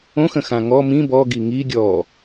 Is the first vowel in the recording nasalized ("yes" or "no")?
yes